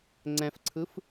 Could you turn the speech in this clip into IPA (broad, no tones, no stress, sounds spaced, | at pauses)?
ŋ͡ǀ ɛ̃ f ǀʰ ɯ f